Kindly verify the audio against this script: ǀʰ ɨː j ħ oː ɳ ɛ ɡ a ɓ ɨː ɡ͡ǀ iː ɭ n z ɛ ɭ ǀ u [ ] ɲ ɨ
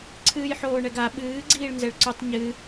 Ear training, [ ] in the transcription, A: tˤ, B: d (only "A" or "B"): A